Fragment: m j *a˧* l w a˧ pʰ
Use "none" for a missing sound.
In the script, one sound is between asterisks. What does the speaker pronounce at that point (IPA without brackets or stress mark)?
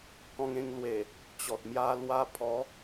a˧